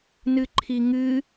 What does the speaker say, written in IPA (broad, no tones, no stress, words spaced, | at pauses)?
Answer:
nɨǃʰiŋɨ